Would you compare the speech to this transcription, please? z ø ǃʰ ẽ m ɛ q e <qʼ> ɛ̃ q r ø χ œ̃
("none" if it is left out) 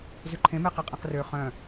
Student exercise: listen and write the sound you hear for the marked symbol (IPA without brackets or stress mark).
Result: qʼ